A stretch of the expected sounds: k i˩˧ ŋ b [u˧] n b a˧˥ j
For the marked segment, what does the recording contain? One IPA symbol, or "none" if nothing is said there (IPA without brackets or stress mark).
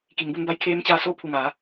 u˧